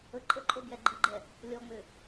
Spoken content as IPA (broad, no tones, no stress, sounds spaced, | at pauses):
ə ǃʼ ə ǃʼ o b j ɛ ɡ͡ǃ i ɡ͡ǃ ɛ | lʲ ɔ ŋ͡m ʏ